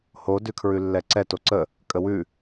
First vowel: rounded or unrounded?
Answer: rounded